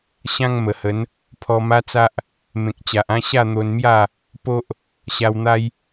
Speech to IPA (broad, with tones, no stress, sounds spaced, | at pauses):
ɕ ã˦ ŋ m ə˨˩ h ə˨˦ n | pʰ ɔ˧ m a˦ t͡s a˦ ʔ | m ẽ˨ k̚ t͡ɕ a˨ ʔ ã˦ ɕ a˥˧ n̪ o˧ n m j a˥˧ | p o˦ ʔ | ɕ a˧ w n̪ a˦ j